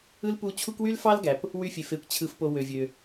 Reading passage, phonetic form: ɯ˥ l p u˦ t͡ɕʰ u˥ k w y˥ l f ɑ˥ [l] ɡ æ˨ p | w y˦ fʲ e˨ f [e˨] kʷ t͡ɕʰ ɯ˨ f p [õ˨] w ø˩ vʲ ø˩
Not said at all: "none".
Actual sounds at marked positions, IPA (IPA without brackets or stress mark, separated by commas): l, e˨, o˨